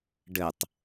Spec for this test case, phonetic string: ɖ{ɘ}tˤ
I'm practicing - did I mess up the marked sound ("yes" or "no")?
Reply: no